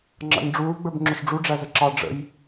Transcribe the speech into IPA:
ŋ͡ǁ ɑ̰ ɲ ɖ͡ʐ uː ɡ͡b ə˞ b ŋ͡ǁ ʊ ʃ ɖ͡ʐ u ɖ͡ʐ æ z ə ǁ ɑ ɖ͡ʐ ə̰ j

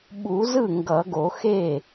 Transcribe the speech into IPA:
ɓ u˨˩˦ z ɯ˥˩ ŋ ɡ ʌ˨˩˦ ɡ o˨˩˦ x e˥˩

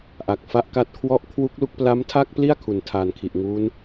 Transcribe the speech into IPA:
ʔ a˨˩ k̚ f a˦˥ ʔ k a˥˩ t̚ kʰ w ɔ˦˥ ʔ kʰ w u˦˥ k̚ l u˦˥ k̚ p l a˦˥ m tʰ a˥˩ k̚ p l i˥˩ a̯ kʰ u˨˩ n tʰ aː˨˩ n kʰ i˨˩ ʔ ŋ uː˦˥ n

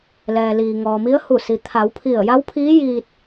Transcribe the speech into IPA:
l ɛː˩ l iː˩ ŋ ɔː˩ m i˧˥ ə̯ h u˧˩ s i˩ t̪ʰ a˩˧ w pʰ i˧˩ ə̯ j a˧˥ w pʰ iː˧˥ j iː˧ t̚

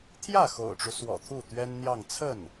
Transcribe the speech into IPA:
t̪ʰ j ä˥˩ x o̰˨˩ ʊ̯ ʈ͡ʂ u˦ s w ɔ̰˨˩ t̪ʰ u˥˩ t̪ ɥ ɛ˥ n n̪ j ɑ˥˧ ŋ t͡sʰ ə˥˩ n

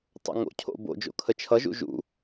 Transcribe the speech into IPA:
tˤ o̰ ŋ o̰ cʰ o̰ b o̰ d͡ʒ o̰ kʰ ə t͡ʃʰ ʌ ʒ ṵ ʒ ṵ

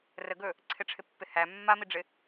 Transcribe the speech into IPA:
r ə ɡ ɵ | ǀʰ ɪ ʈ͡ʂʰ ɪ pː ɪ h æ mː a m i ɖ͡ʐ ɪ

